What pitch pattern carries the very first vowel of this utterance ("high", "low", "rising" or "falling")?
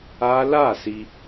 high